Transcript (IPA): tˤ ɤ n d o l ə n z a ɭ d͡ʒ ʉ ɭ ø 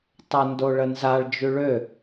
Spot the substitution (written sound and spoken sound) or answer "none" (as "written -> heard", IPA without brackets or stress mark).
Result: l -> ɭ